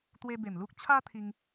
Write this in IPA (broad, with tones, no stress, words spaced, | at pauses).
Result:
t̪we˧be˨˩m lu˦k̚ t͡ɕʰa˦t̪ʰi˧ŋ